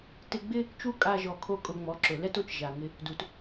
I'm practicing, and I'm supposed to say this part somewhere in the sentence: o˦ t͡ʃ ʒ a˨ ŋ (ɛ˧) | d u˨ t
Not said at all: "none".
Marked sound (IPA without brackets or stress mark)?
ɪ˧